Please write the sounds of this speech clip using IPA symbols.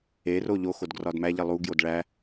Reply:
e r o ʎ o x o d ɡ r ɒ d m æ ʎ e lˠ u ɡ j o d ɭ æ

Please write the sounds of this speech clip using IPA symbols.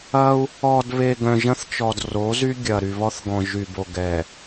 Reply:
ɐ˦ u̯ | ɔ˨ d β e˨ ɡ œ̃˨ ʒ ɐ̃˦ θ t͡ʃ ɔ˨ d r o˨˦ z y˦ ɡʲ ɐ˨ ɾ y˨ β ɔ˦ θ ɡ ɔ̃˨ ʒ y˨ b o˨ ɡ ɛ˨

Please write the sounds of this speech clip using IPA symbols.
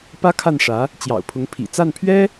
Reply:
p ä˥ kʰ a˥˩ n ʂ ä˧˥ | t͡ɕ j ɑ̰˨˩ ʊ̯ pʰ ʊ˧˥ ŋ pʰ ḭ˨˩ t͡s a˥˩ n pʰ ɥ ɛ˥

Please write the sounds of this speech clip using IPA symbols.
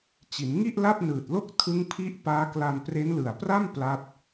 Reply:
t͡ɕ i˩˦ n ŋ i˥˩ ʔ l a˥˩ p̚ n ɯː˨˩ t̚ l o˥˩ k̚ tʰ ɯ˦˥ ŋ pʰ i˦˥ ʔ p aː˦˥ k l a˧ n p r e˦˥ n l ɯ˨˩ a̯ p r a˥˩ m p l a˦˥ t̚

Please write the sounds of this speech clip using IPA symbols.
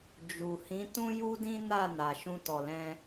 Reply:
d͡ʒ u˨ h ĩ˨˦ t ũ˦ j u˦ d ĩ˦ n a˦˨ n a˨ ʃ ũ˧ t ɔ˨ l ɛ̃˧

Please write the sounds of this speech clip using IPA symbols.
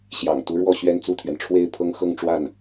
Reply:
ɕ j ɑ̰˨˩ ŋ t̪ u˧˥ ɻ w ɔ˥˩ ɕ ɥ ɛ˥ n t͡s u˥˩ t̪ʰ ɥ ɛ˩ n ʈ͡ʂʰ w e˥˩ ɪ̯ pʰ ɤ˥ ŋ x ɤ˥˧ ŋ ʈ͡ʂ w a˥˩ n

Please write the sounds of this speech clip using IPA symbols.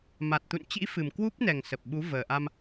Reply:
m a˨˩ t̚ t̪ ṵ˧˨ n t͡ɕ ḭ˧˥ f ɨ˨˩ m k w u˦˥ p̚ n ɛ˨˩ ŋ s ə˨˩ p̚ ɓ u˨˦ v əː˨˩ ʔ a˧ m

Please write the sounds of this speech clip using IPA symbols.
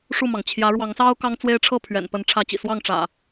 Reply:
ʂ u˥˨ m ɑ˩ ŋ t͡ɕʰ j ä˨˦ ɻ w ɑ˨˦ ŋ s ɑ˦ ʊ̯ k ɑ˦ ŋ t͡s w e˦ ɪ̯ ʈ͡ʂʰ ɤ˥˨ pʰ ɥ ɛ̰˨˩ n p ə˨˦ n ʈ͡ʂʰ ä˨˦ t͡ɕ ḭ˨˩ s w ɑ˥˨ ŋ ʈ͡ʂ ä̰˨˩

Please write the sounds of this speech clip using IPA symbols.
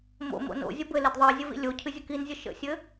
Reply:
m o̰ m o̰ n o̰ zʲ ə b ɘ l ɪ d ðˤ ə i̯ zʲ ɘ v ḭ lʲ o cʰ ɨ zʲ ə k i n zʲ ə ʃ ə̰ sʲ ɘ

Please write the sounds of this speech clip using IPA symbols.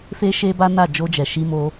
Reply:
f e˦ ʃ e˦ b a˦ n a˦˨ d͡ʒ o˧ d͡ʒ ɛ˨ ʃ i˧ m o˧

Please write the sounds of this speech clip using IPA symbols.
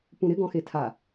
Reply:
p ũ ɾ ɪ ɡ ɔ̃ x e tʰ a

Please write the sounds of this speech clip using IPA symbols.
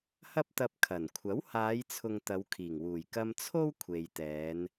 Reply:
h ɐ˥ p̚ t̪ ɐ˧ p̚ kʰ ɐ˨˩ n kʷʰ ɐ˨˥ w h aː˨˧ j t͡sʰ ʊ˨ ŋ t̪ ɐ˨˧ w kʰ iː˨˩ ŋ w uː˨˩ j k ɐ˧ m t͡sʰ o˥ w kʷʰ e˨ j t̪ ɛː˨˧ n

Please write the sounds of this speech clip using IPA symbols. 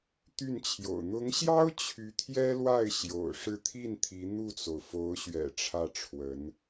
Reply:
t̪ y˥˩ n t͡ɕʰ j o̰˨˩ ʊ̯ n̪ ʊ˧˥ ŋ ɕ j ɑ˥ ʊ̯ t͡ɕʰ y˧˥ t̪ʰ j ɛ˥ l w a˥˩ ɪ̯ ɕ j o̰˨˩ ʊ̯ ʂ ɻ̩˥˧ t̪ʰ i˥˩ n t̪ʰ i˧˥ n̪ u˥˩ t͡s o˩ ʊ̯ f o˧˥ ʊ̯ ɕ ɥ ɛ̰˨˩ ʈ͡ʂʰ ä˥˩ ʈ͡ʂʰ w ə˧˥ n

